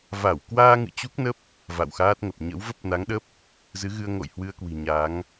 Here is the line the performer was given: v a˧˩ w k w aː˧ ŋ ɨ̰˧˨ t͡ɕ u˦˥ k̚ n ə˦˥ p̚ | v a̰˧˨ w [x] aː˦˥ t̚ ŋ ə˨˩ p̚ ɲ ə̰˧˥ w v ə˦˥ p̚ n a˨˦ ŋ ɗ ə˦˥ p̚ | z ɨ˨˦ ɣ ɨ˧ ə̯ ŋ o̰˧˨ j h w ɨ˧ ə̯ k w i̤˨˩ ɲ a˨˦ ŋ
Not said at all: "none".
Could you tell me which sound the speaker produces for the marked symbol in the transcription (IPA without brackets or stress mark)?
x